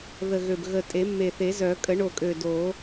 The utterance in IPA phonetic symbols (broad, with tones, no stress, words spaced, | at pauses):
ðə˨˩ɣø˨˩b ɣə˨˩ tʼe˨˩˦mːe˨˩θe˨˩˦zœ˨˩˦ kʼə˨˩˦ɳo˨˩kʼø˨˩ do˨˩˦